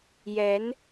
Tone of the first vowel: rising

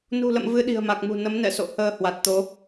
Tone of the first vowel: low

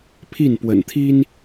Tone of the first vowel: falling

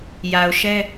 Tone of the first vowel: low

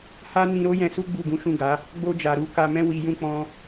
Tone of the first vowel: high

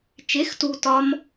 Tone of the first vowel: rising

